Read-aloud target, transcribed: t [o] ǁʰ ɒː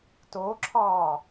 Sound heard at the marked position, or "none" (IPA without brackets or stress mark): o